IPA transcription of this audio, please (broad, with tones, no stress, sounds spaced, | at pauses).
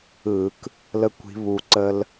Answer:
ɯ˧˩˧ k | l ə˦ kʷ i̤˨˦ β u˧˩ ǀ ə˦ l